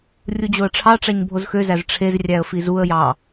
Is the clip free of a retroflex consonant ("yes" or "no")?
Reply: no